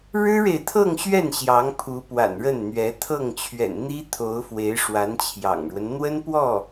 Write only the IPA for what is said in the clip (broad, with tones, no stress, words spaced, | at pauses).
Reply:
ɻɻ̩˥ɻe˨ɪ̯t̪ʰɤ˥˧ŋɕɥɛ˥˩n ɕjɑ˧˥ŋpʰu˧˥ pwa̰˨˩nɻə˥˩nn̪ɥɛ˧˥ t̪ʰɤ˥˩ŋt͡ɕʰɥɛ̰˨˩nn̪i˥ t̪ʰo˧˥ʊ̯fwe˧˥ɪ̯ ʂwa˧˥nt͡ɕʰjɑ̰˨˩ŋɻwə˦n n̪wə˥n pwɔ˥˩